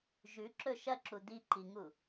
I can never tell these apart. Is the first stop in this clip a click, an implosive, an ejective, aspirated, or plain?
click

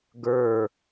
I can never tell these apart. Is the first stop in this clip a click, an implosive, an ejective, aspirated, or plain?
plain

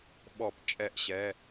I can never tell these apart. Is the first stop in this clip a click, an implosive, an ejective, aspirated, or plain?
implosive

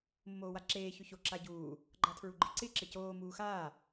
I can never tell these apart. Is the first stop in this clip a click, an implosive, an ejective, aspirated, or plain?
click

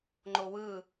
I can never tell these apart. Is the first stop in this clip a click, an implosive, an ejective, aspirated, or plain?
click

